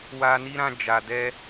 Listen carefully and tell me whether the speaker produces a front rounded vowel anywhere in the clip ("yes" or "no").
no